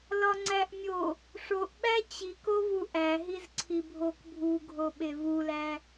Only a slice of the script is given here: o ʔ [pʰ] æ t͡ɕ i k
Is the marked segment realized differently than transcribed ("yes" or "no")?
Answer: yes